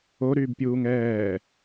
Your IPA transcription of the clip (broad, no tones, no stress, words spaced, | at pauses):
oɾyːbpʲuːŋ ɛː